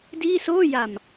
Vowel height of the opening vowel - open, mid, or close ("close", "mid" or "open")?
close